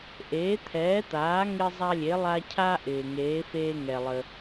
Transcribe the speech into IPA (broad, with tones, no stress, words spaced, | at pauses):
ʔeː˩˥t̪ʰɛː˩˥t̪aː˩˥ ŋɪ˦zˤa˦lʲe˩˥ lˠa˦ cʰa˦ʔɪː˩ ŋeː˩˥feː˦ŋɛ˩lˠə˩